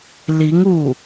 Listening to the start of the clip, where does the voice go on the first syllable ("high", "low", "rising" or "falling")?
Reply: rising